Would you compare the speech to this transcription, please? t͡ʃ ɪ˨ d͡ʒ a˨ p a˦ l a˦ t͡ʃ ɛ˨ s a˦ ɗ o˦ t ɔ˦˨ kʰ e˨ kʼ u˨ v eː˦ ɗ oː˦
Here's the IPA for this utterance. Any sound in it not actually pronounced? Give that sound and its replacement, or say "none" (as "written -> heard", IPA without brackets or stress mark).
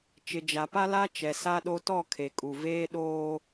none